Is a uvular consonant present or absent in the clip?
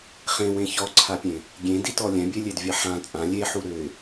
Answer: present